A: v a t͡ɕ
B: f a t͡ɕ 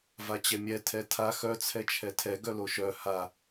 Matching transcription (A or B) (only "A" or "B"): A